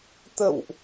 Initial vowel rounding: unrounded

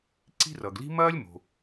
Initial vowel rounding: unrounded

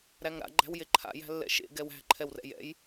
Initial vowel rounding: unrounded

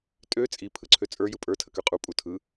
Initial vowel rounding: rounded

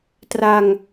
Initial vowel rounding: unrounded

